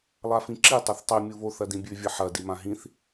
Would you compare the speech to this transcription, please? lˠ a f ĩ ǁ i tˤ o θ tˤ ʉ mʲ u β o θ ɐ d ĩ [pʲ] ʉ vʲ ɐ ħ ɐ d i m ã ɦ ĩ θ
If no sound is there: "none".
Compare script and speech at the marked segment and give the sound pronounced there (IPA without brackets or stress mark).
bʲ